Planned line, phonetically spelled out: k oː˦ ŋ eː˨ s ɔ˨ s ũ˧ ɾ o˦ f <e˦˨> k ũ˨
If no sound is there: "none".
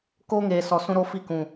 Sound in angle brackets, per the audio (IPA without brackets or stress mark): i˦˨